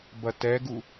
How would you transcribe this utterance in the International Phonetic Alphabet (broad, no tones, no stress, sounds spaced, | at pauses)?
b ɐ t ɛ ɡ u